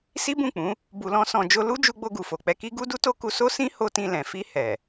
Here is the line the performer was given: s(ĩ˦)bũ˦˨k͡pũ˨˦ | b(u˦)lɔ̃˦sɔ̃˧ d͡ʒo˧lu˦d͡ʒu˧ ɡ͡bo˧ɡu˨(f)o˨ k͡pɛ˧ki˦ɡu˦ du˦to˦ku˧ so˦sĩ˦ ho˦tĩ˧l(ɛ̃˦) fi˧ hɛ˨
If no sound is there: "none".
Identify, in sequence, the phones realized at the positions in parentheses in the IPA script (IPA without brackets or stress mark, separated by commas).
i˦, u˧, f, ɛ̃˨